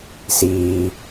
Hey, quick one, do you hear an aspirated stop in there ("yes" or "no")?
no